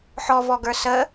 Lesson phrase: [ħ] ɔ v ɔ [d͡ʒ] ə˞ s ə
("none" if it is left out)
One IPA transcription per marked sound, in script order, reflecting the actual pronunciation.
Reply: ħ, ɡ

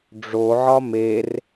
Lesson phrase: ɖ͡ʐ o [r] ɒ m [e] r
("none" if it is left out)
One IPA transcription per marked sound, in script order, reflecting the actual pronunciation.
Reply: ʕ, e

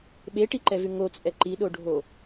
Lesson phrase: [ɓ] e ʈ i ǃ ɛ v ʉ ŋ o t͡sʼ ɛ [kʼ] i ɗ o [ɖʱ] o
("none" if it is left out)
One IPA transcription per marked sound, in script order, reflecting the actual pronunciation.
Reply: ɓ, ǃ, ɖʱ

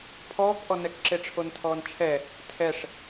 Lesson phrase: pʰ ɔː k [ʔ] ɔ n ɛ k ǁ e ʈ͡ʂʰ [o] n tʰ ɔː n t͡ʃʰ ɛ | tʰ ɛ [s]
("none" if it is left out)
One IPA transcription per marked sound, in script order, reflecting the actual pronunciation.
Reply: ʔ, o, ʂ

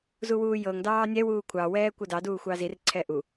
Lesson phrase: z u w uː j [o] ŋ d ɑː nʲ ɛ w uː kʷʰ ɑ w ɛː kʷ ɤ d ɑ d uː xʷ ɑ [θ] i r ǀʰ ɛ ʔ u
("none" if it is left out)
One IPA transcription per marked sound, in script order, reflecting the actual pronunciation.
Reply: ɤ, z

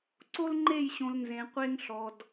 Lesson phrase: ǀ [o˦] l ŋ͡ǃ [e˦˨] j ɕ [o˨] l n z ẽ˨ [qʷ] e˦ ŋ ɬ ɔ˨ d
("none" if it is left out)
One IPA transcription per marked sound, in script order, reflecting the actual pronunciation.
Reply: o˦, e˦˨, õ˨, qʷ

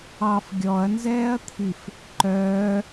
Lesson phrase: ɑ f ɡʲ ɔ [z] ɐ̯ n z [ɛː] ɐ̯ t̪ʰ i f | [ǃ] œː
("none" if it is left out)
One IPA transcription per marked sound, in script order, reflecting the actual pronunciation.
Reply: none, ɛː, ǃ

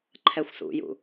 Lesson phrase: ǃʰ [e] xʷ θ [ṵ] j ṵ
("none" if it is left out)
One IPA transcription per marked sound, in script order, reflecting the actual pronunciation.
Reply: ɛ, ṵ

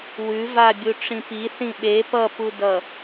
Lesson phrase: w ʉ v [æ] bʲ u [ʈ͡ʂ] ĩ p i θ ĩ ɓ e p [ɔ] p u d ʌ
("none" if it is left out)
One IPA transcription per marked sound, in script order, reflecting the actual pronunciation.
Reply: a, ʈ͡ʂ, ʌ

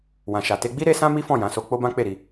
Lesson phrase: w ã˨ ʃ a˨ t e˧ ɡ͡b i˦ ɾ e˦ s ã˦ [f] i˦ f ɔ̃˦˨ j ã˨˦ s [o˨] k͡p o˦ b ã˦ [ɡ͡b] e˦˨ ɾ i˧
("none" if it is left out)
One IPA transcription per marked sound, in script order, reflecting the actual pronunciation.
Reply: m, o˧, k͡p

